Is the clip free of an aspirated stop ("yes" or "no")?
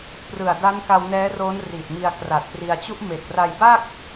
yes